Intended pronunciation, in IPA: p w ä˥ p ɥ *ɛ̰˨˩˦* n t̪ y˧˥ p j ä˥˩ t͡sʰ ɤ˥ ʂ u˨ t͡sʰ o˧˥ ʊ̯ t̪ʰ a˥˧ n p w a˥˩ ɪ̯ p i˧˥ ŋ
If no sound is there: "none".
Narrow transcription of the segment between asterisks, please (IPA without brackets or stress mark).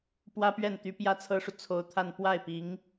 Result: ɛ˥˩